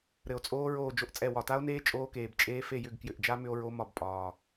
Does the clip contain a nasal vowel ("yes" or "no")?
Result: no